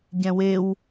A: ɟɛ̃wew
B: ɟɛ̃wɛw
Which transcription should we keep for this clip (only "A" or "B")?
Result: A